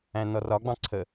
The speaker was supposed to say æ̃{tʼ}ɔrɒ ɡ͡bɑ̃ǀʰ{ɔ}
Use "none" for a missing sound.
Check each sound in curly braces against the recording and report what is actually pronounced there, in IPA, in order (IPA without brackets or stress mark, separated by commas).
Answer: n, ə